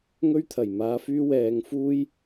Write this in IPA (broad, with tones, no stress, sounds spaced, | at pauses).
ŋ ɵ˥ ɥ t̪ʰ ɐ˨˩ j m aː˧ f yː˥ w ɛː˧ ŋ f uː˥ j